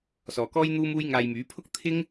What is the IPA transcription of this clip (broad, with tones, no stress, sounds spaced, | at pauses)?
s ɔː˨ k ɔː˥ j n̪ uː˥ m uː˥ j ŋ aː˧ j m yː˨˥ pʰ ʊ˥ k̚ t̪ʰ ɪ˥ ŋ